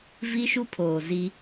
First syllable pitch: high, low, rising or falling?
high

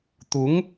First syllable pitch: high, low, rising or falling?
rising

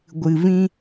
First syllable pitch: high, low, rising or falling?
low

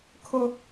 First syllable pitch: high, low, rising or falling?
high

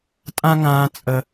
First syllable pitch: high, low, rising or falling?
high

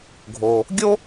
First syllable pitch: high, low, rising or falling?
low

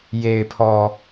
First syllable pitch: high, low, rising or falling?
low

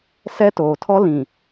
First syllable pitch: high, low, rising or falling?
high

